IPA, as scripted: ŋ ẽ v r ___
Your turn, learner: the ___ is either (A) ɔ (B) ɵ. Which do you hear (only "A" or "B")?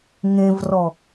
A